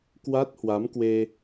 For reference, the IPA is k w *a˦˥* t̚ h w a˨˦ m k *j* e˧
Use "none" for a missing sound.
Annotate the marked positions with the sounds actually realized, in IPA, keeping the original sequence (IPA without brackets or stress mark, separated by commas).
a˦˥, w